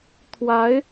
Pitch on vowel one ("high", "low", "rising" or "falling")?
rising